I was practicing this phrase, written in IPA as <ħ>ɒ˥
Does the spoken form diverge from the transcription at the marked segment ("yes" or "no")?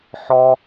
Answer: no